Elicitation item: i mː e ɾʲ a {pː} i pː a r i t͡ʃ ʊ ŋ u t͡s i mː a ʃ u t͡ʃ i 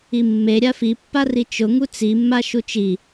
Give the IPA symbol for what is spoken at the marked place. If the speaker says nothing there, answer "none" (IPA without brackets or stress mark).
f